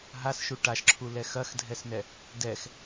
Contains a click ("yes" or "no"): yes